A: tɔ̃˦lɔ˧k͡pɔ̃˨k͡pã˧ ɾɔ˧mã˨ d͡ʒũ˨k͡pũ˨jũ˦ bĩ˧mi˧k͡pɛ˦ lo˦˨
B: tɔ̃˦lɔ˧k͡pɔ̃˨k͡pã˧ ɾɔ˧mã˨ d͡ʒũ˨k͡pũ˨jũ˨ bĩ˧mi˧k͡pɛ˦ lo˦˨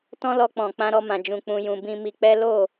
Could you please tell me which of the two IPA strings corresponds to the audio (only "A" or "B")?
B